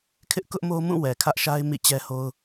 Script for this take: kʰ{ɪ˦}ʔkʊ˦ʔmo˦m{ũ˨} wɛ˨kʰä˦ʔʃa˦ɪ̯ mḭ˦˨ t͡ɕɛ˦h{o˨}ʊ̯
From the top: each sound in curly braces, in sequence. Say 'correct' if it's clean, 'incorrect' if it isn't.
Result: correct, incorrect, incorrect

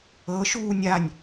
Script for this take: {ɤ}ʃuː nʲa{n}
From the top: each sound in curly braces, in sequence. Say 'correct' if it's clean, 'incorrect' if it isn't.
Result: correct, incorrect

